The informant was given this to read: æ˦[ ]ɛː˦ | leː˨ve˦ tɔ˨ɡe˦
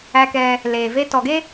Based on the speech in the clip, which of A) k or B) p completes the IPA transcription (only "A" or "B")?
A